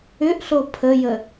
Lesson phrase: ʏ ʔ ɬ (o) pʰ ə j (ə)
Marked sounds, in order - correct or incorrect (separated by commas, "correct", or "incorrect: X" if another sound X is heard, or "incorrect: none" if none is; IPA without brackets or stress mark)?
correct, correct